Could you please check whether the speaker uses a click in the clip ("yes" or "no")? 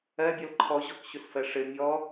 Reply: yes